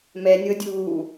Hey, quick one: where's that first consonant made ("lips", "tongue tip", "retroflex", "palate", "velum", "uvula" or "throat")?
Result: lips